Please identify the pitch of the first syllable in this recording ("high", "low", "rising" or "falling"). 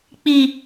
low